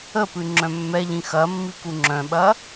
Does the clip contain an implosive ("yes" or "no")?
yes